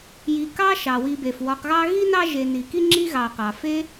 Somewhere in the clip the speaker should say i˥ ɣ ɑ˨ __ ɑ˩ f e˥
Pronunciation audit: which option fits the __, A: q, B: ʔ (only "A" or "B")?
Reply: A